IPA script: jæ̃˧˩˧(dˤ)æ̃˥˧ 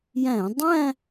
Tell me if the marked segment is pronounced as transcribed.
yes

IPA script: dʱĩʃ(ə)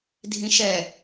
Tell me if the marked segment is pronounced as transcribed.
no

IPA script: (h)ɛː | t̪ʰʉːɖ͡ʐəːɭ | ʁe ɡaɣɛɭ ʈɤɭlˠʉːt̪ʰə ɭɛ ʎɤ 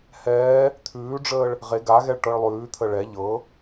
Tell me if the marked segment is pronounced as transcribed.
yes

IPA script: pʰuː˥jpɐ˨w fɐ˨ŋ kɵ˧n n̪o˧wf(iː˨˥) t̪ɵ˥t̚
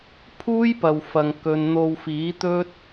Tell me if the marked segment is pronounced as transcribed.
yes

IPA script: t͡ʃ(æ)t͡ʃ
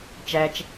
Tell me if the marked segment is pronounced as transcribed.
yes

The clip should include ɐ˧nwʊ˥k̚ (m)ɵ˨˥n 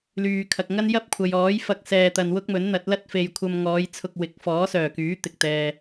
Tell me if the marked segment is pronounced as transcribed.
yes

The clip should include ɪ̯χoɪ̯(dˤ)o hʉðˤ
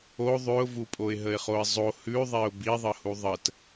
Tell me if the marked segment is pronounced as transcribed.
no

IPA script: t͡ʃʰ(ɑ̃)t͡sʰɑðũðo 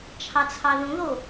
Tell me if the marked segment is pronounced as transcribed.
no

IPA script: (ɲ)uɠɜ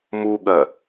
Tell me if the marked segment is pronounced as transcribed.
no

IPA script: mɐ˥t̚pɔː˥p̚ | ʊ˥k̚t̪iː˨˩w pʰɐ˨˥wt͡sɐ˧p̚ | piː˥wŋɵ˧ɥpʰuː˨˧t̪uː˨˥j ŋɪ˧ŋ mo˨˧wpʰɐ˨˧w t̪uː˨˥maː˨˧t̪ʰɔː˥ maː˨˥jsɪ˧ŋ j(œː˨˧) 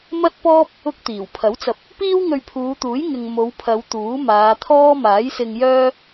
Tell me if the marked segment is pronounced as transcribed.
no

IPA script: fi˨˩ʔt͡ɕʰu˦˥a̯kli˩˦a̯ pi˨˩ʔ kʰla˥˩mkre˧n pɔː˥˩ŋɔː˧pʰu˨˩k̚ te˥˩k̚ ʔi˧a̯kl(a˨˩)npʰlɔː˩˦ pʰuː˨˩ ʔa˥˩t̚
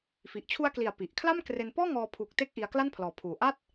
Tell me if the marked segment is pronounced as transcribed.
no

